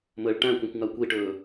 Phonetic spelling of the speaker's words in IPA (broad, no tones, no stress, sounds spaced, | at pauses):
m əː ɭ ʈ æ̃ kʷ æ̃ kʷ ŋ a kʷ i ʈ ɵː